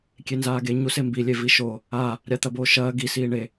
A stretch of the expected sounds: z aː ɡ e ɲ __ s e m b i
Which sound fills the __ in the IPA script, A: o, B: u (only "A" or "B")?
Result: B